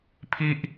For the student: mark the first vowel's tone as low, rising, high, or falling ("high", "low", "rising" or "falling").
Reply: high